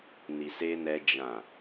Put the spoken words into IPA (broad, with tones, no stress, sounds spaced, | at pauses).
n i˨ s e˧ n ɛ˧ d͡ʒ ã˨